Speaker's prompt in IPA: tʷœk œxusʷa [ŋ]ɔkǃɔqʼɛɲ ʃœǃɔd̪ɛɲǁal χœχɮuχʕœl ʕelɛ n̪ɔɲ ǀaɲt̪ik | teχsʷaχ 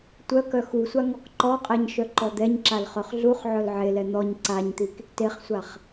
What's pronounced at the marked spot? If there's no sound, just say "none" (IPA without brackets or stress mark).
ŋ